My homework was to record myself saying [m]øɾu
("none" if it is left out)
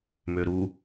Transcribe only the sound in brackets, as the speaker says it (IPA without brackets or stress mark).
m